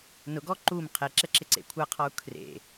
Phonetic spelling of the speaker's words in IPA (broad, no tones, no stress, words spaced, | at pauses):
nʊɡɔ ǃum qʰɛǁɛǁɪǀḛ kʷʰaqʰɔu̯ kʰrḛ